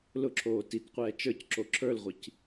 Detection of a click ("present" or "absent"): present